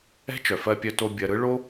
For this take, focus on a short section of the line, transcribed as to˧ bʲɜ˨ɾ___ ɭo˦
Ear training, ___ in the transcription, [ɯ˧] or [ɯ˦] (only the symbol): ɯ˧